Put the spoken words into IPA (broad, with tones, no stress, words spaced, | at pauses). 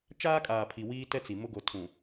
t͡ʃaː˦kʼaː˨pʰi˨ wiː˦tɛ˦t͡si˨ mʊ˦ɡo˨˦tʰũ˨